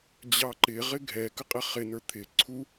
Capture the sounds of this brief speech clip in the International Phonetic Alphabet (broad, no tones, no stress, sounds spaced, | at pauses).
d͡ʑ ɑ ǃ ɪ ʁ ɪ ɡʱ ɛ k ə qʼ ɛ χ ɪ n ə˞ t̪ʰ ɪ ǀʰ u